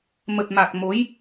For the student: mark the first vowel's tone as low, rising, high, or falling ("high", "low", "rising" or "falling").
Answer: low